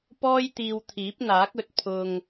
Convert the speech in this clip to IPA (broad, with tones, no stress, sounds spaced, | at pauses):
p ɔː˥ j t̪ iː˧ w t̪ʰ iː˨˥ p̚ n̪ aː˨˥ k̚ ɵ˨ t̚ pʰ ʊ˨ ŋ